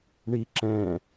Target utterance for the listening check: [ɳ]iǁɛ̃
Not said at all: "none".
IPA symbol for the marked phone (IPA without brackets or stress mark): ɳ